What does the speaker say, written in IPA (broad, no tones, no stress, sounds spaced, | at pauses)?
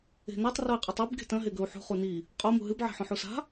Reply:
e̤ n ɐ tˤ r o i̯ qʼ ɨ tˤ i b ɡ e̤ t ɐ̃ ɦ e ɡ ɵ u̯ ħ ṳ χ u n i | qʼ o m ṳ ɦ ɨ b ʕ e̤ ħ õ ħ u s a̤